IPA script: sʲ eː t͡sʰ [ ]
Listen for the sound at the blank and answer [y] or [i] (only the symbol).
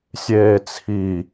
i